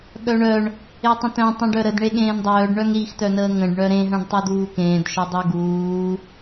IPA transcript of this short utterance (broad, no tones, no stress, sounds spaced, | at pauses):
ɠ œ ɳ œ ɳ | e tˤ ə̃ t œ̃ tˤ ũ ɖ œ ɾ ə d ɳ e ɠ ẽː n dˤ œː ɖ ɳ œ ŋ ɾ i x t œ n əː ŋ ə̃ ɖ ɳ œ ɾ ẽ ɦ œ̃ ɖ tˤ u d uː k ẽː d ʃ œ dˤ u ɡ uː